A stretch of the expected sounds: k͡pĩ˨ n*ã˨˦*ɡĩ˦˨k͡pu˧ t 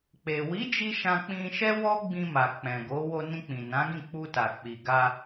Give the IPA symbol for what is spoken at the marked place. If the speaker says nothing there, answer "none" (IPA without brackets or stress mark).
ã˨˦